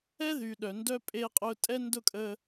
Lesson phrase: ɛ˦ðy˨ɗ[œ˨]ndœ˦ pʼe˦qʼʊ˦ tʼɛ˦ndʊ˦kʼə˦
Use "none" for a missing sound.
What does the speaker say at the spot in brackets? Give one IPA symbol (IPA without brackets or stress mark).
œ˨